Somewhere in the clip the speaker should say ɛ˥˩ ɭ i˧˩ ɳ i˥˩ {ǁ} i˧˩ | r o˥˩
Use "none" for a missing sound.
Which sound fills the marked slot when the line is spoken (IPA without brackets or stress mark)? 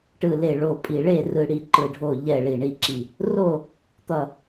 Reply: ǁ